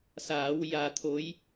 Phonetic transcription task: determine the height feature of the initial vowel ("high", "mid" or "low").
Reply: low